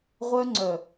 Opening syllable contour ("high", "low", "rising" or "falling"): high